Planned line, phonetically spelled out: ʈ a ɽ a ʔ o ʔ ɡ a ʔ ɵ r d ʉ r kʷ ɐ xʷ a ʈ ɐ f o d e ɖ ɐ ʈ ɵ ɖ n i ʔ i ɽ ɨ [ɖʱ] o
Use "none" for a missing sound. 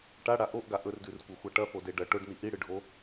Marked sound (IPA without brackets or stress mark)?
ɖʱ